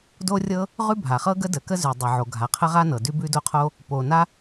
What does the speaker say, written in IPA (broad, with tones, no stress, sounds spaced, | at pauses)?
d o˥ rʲ ɤ˥ | ʁ ʉ˥ bʱ a˩ χ ɤ˥ ɡ ə˥ d ə˩ k ə˥ z ʉ˩ dˤ ɤ˩ ʕ o˩ ɡʱ a˩ qʰ ə˥ ʁ a˥ n ɤ˩ d ʉ˥ b ʉ˥ d o˥ qʰ o˥ | p o˩ n a˥